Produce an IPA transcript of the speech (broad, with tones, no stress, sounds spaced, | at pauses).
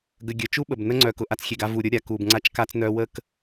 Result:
ɡ ə˨ ɡʲ ə˨ t͡ʃ u˦ ɓ ə˨ b n ə˦ ŋ͡ǀ œ˨ k ʊ˨ ʔ a˦ t͡s xʲ e˨ ɡ a˦ v u˨ ɾʲ ʊ˦ ɾʲ a˨ k u˨ b ŋ͡ǀ a˦ t͡ʃ k a˦ t͡s n œ˦ w ə˦˨ k